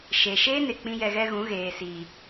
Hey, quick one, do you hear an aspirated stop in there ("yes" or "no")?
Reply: no